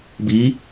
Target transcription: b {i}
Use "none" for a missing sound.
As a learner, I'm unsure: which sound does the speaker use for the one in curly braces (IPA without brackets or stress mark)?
i